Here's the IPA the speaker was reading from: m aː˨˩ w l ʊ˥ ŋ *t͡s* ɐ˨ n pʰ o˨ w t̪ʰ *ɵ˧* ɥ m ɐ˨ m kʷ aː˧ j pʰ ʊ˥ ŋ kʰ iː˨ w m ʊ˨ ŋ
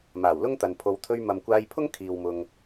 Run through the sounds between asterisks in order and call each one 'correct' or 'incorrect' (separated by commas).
incorrect, correct